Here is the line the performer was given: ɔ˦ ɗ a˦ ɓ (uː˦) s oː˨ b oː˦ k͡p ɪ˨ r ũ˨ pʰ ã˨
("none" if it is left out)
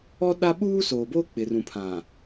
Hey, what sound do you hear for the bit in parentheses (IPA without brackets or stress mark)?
uː˦